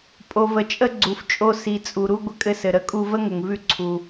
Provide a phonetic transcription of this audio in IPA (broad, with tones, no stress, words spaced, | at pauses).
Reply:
pʼo˩və˩t͡ʃʼə˧ ɡ͡ǀu˩ft͡ʃʼo˧ si˩t͡sʼu˩ɾu˧ ɡʷə˧kʼɘ˧sɘ˩ ɾə˧kʼu˧və˥ŋə˩ŋ vʉ˧ǀʰu˩